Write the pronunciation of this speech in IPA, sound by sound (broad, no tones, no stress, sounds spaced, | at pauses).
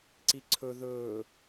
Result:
ǀ i ǀʰ ɵ ð ɵː